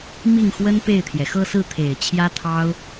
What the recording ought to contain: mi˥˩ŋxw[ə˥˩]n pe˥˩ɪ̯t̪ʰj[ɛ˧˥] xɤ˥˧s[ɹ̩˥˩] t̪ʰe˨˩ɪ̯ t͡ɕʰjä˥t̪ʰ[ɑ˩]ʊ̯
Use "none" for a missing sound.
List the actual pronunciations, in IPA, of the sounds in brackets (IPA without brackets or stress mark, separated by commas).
ə˥, ɛ˩, ɹ̩˥˩, ɑ˥